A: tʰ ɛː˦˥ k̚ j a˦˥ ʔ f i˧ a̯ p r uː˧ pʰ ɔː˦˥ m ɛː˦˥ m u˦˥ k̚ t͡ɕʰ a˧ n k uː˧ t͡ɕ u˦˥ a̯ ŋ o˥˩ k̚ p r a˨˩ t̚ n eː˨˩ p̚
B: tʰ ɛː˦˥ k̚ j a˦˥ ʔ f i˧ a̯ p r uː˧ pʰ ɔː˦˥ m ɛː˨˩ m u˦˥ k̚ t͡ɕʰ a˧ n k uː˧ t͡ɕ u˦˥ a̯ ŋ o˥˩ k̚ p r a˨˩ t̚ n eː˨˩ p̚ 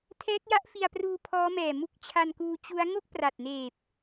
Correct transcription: B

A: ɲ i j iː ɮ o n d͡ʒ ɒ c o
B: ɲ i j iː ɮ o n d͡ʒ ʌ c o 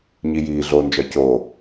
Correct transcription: A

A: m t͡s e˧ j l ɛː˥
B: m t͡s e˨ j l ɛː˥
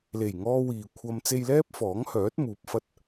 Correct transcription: A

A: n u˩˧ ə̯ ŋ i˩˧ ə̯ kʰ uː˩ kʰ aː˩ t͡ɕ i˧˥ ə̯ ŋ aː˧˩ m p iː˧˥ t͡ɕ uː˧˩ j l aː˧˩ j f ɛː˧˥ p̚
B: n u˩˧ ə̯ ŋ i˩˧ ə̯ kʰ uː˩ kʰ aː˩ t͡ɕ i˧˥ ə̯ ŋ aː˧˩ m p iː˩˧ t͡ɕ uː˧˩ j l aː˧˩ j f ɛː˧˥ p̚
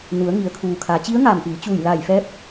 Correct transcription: B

